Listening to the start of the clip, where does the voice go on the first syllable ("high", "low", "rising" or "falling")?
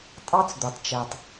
high